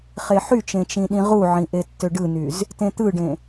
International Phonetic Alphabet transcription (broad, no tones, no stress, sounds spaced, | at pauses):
χ e ħ y t͡ʃ ẽ t͡ʃ ĩ ɗ ĩ ʁ u ʕ ĩ ʔ e tː ø ɖ ɯ n y z | t ẽ t̪ ɯ ɖ ẽ